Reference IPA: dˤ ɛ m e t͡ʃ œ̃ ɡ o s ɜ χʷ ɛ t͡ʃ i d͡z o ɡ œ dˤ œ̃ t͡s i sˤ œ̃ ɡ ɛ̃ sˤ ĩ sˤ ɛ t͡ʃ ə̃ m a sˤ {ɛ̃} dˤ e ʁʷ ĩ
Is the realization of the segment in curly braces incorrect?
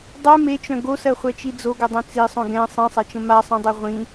no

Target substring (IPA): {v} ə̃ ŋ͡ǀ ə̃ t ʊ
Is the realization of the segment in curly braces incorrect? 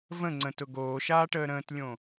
no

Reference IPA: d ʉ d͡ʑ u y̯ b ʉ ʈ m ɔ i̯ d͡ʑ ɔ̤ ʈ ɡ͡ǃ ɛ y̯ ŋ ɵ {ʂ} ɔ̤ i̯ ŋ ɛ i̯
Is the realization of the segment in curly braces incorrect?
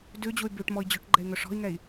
no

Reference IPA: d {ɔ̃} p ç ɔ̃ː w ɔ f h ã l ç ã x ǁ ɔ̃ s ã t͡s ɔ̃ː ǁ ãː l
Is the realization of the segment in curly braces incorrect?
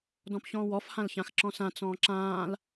no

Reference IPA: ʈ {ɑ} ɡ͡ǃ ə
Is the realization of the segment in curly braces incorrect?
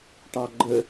no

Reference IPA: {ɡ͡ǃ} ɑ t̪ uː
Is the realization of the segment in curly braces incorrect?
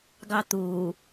yes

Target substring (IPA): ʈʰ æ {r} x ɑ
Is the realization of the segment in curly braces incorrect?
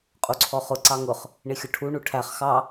yes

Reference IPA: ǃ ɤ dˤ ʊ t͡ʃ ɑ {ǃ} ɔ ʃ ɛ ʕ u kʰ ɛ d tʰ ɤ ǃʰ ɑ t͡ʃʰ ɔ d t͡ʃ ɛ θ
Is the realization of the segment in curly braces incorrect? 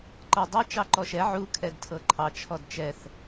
no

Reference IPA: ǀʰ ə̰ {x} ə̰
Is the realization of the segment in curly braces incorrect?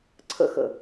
no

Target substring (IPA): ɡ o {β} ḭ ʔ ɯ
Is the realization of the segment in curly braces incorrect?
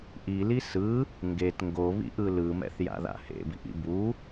no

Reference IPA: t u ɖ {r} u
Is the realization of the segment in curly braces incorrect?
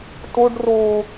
no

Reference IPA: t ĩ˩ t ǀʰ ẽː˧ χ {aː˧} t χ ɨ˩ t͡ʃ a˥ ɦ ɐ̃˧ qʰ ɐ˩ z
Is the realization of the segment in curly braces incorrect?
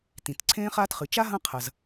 no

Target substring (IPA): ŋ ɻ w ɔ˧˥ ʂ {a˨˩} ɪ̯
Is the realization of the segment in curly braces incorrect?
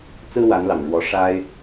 yes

